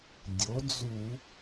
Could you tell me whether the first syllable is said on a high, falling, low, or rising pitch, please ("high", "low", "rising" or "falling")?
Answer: rising